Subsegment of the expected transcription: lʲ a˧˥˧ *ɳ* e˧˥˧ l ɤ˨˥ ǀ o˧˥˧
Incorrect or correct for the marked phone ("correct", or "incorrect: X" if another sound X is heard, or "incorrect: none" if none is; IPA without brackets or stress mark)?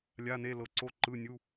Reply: incorrect: n